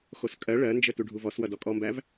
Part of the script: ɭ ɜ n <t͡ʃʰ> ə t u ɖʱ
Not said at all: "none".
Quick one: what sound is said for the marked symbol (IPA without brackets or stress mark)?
d͡ʒ